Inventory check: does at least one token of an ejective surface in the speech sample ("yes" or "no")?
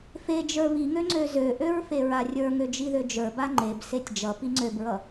no